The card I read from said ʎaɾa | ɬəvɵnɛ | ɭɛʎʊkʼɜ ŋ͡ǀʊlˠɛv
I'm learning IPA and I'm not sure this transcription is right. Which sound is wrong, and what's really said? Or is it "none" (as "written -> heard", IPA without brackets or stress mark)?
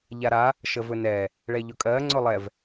ɬ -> ʃ